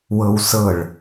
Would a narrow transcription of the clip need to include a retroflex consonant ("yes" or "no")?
yes